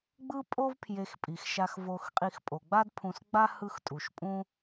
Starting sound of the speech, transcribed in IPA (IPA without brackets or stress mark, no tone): ɡ͡b